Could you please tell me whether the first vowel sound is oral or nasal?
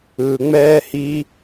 oral